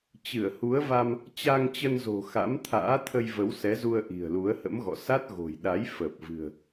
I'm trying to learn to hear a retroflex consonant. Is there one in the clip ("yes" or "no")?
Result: no